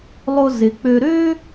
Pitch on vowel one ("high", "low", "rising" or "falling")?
high